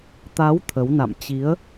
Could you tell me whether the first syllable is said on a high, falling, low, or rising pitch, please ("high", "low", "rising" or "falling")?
rising